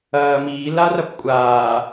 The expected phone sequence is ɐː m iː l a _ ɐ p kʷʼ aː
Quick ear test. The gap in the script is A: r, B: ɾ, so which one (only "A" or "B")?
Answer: A